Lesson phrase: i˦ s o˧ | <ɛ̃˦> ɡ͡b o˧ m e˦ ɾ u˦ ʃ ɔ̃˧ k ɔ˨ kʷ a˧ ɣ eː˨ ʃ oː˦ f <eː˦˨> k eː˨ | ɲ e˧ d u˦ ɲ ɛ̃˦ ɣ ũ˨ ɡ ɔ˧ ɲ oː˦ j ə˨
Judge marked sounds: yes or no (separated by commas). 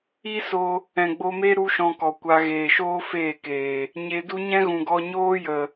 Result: no, yes